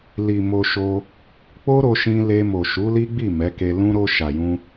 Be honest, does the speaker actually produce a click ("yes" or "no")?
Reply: no